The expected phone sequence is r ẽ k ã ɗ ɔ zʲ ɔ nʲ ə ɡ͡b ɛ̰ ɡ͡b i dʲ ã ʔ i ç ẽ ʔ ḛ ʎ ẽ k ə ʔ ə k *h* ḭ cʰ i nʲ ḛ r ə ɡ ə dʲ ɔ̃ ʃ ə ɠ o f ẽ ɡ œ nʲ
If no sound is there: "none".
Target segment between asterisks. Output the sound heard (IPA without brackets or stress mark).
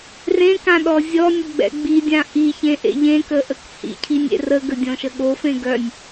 h